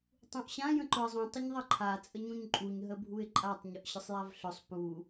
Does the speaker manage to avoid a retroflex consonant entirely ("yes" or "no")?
yes